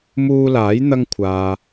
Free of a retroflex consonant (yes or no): yes